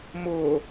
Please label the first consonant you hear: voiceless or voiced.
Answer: voiced